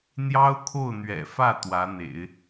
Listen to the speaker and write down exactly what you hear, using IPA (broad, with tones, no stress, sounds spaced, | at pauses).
n̪ j ɑ˥ ʊ̯ kʰ o˥˩ ʊ̯ n̪ ɥ ɛ̰˨˩ f ä˥˩ t̪ w ä˧˥ n̪ ḛ˨˩˦ ɪ̯